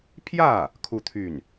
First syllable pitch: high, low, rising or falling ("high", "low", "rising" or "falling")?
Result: falling